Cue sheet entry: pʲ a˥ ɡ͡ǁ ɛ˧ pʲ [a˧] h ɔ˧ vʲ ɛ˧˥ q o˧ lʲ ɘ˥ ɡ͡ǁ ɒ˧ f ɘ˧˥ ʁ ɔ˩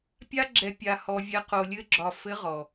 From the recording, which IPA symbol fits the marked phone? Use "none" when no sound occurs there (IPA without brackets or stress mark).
a˧